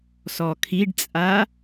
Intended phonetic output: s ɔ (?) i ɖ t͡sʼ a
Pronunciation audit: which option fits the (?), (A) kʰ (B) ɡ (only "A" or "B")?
A